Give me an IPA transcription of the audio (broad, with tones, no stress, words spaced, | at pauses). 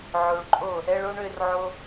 ʕo˨ɭǃʼo˦˨ | ɛ˧ɭo˧ɳ ø˧rʕo˧